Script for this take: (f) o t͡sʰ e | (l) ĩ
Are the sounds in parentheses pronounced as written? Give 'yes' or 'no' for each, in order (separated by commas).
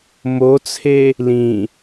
no, yes